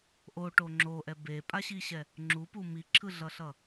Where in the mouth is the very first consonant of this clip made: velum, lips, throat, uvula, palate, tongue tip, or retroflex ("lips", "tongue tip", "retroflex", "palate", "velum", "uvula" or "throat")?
throat